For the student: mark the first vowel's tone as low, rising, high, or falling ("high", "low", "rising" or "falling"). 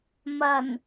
low